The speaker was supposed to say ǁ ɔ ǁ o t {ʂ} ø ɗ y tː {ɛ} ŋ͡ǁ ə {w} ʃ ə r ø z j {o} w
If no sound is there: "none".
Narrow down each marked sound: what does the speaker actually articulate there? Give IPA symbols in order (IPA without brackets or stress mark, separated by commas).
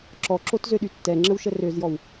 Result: z, ɛ, w, ɔ